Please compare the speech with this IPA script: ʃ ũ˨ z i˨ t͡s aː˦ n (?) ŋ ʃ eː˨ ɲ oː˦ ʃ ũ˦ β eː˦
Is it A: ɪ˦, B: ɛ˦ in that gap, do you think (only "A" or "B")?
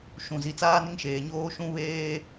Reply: A